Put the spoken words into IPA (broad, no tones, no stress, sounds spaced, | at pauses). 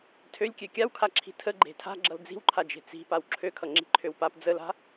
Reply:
tʰ ø lʲ kʲ ø kʲ a w kʰ a ǁʰ i̤ tʰ ə ɡ͡ǃ e̤ tʰ a̤ ɡ͡ǁ ʌ l d͡z i̤ w ǃʰ a d͡ʒ e̤ t͡s i̤ p a w ǁʰ ø kʰ ʌ ŋ͡ǁ i̤ ǃʰ ø w p a p d͡z ə l a̤